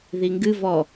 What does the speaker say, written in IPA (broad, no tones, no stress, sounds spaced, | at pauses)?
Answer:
ð i ŋ ɡ ɨ v ɔ